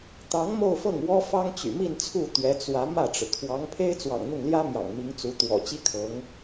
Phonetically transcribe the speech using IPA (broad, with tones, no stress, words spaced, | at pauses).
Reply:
t̪ɑ˧˥ŋ mo˥˧ʊ̯fɤ˥˩ŋwɔ˥ fɑ˥ŋt͡ɕy̰˨˩mi˥˧nt͡sʰu˥˩ t̪ɥɛ˧˥t͡swä˧˥ mä˥˩ʈ͡ʂɻ̩˩ kʰwɑ˧˥ŋ pʰe˥ɪ̯t͡swɑ̰˨˩ŋn̪ʊ˥˩ŋljä˥ mjɑ̰˨˩ŋmi˧˥ŋt͡su˧˥ t̪wɔ̰˨˩t͡ɕi˥kʰɤ˧˥ŋ